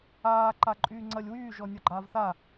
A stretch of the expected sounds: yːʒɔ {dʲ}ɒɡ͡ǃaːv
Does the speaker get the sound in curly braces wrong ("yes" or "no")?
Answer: yes